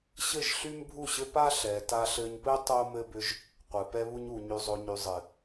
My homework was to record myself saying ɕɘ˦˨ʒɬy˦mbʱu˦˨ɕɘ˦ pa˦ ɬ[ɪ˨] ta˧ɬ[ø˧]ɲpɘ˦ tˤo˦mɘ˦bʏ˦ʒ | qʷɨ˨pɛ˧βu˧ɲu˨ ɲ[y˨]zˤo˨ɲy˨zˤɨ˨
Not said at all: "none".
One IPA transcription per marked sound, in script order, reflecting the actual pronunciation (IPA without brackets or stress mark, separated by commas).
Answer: ɛ˨, ɘ˧, y˨